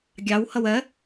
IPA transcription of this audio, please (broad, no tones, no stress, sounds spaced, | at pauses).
ɡʲ ɑ w h ʌ w ɜ